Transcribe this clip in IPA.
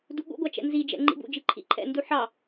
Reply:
duɠṵɡʷɑ t͡ʃɛ̰nzid͡ʒɛ̰ ŋ͡ǃḭbṵd͡ʒi ǃʰḭǃʰɛ̰ndu ħɑ

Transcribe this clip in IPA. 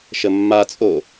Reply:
ʃəmːat͡sʼo

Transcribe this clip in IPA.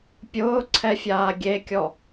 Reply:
pʲʊːǀʰɛfʲaː ɡʲekʲɔ

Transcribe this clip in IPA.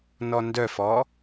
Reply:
nɔndœfɔ

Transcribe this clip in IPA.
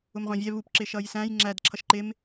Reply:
ʊmʁʷɑ̃vʲɛ βup ǁɪʃʌjsæ̃j ŋ͡ǁæd ǁʰʌʃǃɪm

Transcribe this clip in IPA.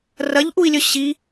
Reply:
rɐʎʔui̯lʲɵ ɕi

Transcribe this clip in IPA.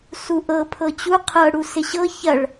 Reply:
suʔɤ pʰɤt͡ɕu qʰɤ ɽusɪɕɤ çɐɭ

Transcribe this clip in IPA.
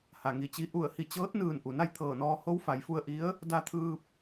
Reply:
ha˩ŋi˧˩t͡ɕi˧ ʔu˧˩ə̯hi˧˩t͡ɕɤː˧˥t̚nɯː˧˩n ʔu˩na˥˨jt̪ʰɤː˧˩nɔː˧ ho˧˥wfa˩˧jfu˧ə̯ʔi˧˥ə̯ | da˧t̪ʰɯː˧p̚

